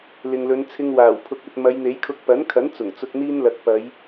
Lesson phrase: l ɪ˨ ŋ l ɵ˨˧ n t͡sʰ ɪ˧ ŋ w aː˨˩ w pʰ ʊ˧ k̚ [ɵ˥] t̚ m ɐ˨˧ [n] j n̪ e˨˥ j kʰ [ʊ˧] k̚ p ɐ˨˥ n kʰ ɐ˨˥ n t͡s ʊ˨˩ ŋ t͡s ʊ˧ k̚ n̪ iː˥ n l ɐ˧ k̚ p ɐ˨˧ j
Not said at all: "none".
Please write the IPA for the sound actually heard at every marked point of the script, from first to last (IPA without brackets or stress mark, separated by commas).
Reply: ɵ˧, none, ʊ˧